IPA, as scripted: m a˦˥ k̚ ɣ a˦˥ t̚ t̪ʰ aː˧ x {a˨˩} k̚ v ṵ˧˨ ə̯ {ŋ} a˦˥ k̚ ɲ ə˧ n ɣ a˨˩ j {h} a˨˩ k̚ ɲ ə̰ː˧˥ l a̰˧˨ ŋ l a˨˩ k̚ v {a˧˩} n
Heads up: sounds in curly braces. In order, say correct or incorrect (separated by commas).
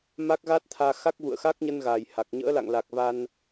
incorrect, incorrect, correct, incorrect